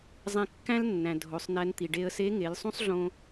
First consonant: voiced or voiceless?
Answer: voiced